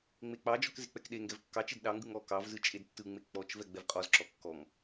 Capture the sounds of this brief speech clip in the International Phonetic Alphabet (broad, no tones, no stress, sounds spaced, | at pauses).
ŋ͡m e k͡p ɑ d͡ʒ ɔ k z e k͡p ɛ k ɗ e ŋ ɡ ɛ v kː ɑ t͡ʃ e d ɗ ɑ ŋ ɡ ɯ ŋ ɔ k ɑ v z ɯ t͡ʃʼ e d tː ɯ ŋ͡m e k͡p ɔ t͡ʃ v ɛ ɡ͡b ɛ v qʼ ɔ z ǁ ɔ kː ɔ ŋ